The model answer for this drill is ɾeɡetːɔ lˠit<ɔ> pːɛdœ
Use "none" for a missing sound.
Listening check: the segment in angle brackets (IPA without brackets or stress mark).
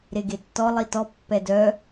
ɔ